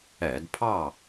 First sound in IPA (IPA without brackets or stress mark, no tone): ɛ